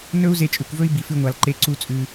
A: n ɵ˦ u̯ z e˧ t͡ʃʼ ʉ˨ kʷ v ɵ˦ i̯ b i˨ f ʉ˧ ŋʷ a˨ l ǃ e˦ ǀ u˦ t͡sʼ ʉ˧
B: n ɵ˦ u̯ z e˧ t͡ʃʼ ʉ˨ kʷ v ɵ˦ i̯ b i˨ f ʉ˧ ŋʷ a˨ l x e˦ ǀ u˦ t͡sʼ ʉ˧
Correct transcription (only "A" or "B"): A